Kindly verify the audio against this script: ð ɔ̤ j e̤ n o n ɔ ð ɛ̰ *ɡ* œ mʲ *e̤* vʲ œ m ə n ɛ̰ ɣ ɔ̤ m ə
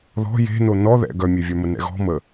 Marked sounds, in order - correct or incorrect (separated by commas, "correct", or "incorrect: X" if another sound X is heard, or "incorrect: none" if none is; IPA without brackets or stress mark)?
correct, incorrect: e